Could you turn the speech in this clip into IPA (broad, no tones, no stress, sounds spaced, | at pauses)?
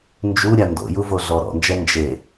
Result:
n d͡ʒ u ɾʲ a n d o̰ j u v o ɮ ɔ ɾ ɔ̰ n d͡ʒ ɛ n d͡ʒ e